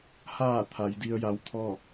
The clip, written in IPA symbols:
h aː˧˩ t̪ʰ a˩˧ j d i˧ ə̯ j a˧˥ w t̪ʰ ɔː˥˨

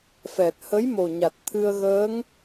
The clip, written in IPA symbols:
f ɛ˨˩ t̚ h ə˧˥ j m o˨˩ ɲ a˨˩ t̚ t̪ʰ ɨ˧ ə̯ ɣ əː˧˥ ŋ

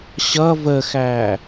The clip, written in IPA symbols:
ɕ ʌ v ə x æː

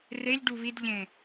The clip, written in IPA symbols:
r e ʎ ɖ u β i d ʎ ẽ

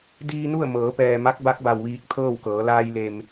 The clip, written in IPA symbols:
d iː˧ n u˥˨ ə̯ m ɤː˩˧ p ɛː˩ m a˧˥ k̚ b a˧˥ k̚ b a˩ w ʋ iː˧˩ k̚ t̪ʰ ɤː˥˨ w k ɤː˩˧ l aː˧ j l e˩ m

